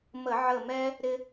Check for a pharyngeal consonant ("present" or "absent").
present